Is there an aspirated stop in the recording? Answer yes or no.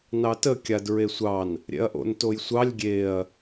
no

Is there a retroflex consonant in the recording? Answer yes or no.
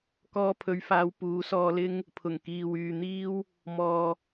no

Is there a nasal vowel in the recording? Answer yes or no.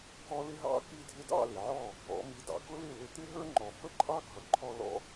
no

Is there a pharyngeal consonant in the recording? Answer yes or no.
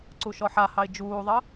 yes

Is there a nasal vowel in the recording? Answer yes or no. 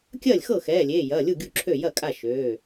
no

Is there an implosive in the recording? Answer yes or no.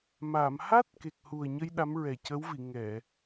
yes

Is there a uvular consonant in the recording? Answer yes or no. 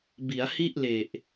no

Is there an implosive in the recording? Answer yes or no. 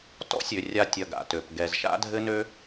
no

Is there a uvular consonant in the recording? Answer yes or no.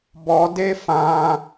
no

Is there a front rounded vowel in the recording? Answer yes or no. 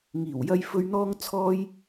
no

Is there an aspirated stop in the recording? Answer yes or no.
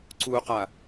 no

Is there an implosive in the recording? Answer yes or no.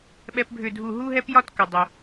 yes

